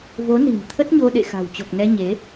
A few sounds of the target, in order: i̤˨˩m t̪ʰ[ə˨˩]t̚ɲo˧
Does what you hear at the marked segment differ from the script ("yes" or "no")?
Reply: yes